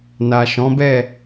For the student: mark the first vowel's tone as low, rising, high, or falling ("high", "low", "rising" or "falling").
low